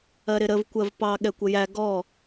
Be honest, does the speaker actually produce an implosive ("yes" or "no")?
yes